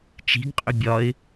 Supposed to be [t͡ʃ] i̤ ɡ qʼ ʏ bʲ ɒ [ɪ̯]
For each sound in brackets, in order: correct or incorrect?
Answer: correct, correct

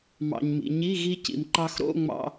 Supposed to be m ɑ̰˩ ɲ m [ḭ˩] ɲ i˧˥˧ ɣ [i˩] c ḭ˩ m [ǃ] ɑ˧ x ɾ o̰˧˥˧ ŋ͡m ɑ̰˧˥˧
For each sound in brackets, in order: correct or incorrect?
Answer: correct, incorrect: i˧, correct

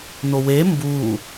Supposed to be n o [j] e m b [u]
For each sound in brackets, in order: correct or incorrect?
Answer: incorrect: w, correct

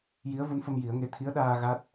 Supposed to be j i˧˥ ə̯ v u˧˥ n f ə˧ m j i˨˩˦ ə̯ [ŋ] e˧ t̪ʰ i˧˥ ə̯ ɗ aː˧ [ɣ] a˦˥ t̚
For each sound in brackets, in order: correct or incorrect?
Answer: correct, correct

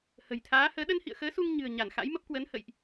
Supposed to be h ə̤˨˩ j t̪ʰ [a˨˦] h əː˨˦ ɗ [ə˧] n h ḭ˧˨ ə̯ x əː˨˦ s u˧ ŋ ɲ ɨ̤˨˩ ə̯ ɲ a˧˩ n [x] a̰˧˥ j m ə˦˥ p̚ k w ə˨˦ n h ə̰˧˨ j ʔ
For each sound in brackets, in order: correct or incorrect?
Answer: incorrect: aː˨˦, correct, correct

